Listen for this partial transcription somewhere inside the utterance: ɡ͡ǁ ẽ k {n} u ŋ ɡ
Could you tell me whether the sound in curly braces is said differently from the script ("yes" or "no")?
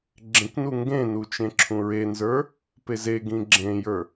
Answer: no